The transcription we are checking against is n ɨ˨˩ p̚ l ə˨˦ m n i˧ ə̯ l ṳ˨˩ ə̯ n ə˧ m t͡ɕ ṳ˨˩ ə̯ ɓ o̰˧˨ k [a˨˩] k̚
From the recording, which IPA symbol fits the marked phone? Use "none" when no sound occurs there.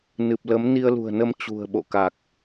a˨˩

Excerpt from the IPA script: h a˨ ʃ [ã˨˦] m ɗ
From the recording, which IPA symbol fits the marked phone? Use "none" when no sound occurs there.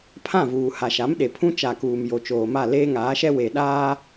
a˨˦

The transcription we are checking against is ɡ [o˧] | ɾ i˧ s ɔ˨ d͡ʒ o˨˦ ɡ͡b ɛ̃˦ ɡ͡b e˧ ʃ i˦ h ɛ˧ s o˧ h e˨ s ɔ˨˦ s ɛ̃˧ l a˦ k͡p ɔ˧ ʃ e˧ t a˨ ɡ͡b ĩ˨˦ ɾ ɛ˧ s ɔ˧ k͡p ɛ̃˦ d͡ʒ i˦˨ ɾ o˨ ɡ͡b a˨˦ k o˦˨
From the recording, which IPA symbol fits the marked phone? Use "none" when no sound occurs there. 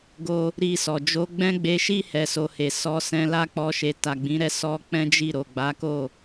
o˧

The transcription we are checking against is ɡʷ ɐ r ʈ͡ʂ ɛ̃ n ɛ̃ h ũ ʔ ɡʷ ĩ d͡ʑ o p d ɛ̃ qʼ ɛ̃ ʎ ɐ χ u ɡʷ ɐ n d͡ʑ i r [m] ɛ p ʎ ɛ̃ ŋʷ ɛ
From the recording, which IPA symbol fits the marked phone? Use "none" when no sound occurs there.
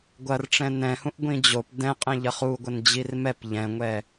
m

